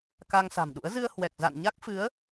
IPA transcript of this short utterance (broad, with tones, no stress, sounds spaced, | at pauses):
k a˧ ŋ s a̤˨˩ m ɗ ṵ˧˥ ə̯ z ɨ˧ ə̯ h w ɛ˨˩ k̚ z a̰˧˨ n ɲ a˦˥ k̚ f ɨ˨˦ ə̯